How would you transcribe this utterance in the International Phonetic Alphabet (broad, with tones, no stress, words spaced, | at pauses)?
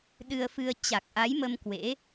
ɗɨ˧ə̯fɨ˧ə̯ t͡ɕa˨˩k̚ ʔa˨˦jmə˧m kwḛ˧˥